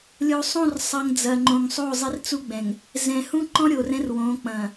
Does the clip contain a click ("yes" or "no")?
yes